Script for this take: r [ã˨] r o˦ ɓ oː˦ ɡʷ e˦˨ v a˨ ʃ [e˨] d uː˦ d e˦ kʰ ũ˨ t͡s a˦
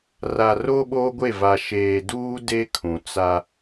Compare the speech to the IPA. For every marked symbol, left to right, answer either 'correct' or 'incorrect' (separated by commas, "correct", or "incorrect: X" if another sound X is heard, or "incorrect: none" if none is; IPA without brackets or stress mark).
incorrect: a˨, incorrect: eː˨